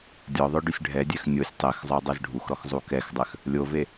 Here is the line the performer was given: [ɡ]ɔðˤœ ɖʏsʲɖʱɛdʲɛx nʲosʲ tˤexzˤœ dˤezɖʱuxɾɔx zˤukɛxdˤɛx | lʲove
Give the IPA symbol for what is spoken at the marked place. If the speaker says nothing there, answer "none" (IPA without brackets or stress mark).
dʲ